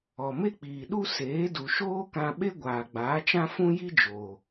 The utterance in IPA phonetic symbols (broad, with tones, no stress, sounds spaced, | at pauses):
ɔ˨ m e˦ k͡p iː˨ ɗ u˦ s eː˨˦ d u˨ ʃ oː˦ k ã˧ ɓ e˦ ɡʷ aː˨ ɡ͡b aː˨˦ t͡ʃ ã˦ f ũ˦ j i˦ d͡ʒ oː˨